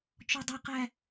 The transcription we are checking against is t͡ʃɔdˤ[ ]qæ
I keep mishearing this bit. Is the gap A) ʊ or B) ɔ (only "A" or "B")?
A